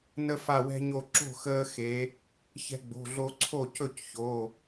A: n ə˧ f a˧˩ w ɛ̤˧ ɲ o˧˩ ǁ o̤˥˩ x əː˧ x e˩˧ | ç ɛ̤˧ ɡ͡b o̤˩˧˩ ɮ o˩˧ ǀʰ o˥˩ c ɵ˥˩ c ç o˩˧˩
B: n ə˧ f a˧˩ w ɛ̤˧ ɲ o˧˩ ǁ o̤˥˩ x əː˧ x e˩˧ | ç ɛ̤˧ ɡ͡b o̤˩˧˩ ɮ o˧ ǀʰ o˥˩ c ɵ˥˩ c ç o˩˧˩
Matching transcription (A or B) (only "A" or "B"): B